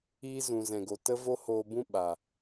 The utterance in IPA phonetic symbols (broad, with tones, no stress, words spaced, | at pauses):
iː˦ zũ˨zɛ̃˨ɡo˨ tə˦vo˦hoː˧bũ˦ ɓa˨